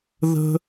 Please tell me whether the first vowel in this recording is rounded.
no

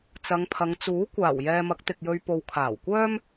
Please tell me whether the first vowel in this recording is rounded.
no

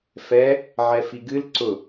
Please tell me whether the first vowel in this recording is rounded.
no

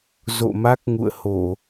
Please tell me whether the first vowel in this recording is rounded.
yes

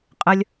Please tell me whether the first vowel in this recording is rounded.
no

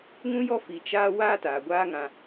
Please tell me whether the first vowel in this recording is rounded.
yes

